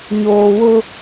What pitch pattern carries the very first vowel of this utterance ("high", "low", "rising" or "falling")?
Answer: low